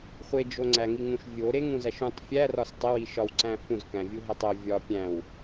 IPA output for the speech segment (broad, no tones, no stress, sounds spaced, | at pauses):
χʷ e d͡ʒ o ŋ͡ǀ æ ŋ i ŋ ũ ʃ vʲ o ɾ e ŋ ũ z æ ʃ ũ tˤ fʲ æ r ɒ s tˤ e w i ʃ ɒ w ǀ æ̃ f ũ z k æ̃ vʲ u ɦ æ tˤ o vʲ ɒ pʲ æ̃ w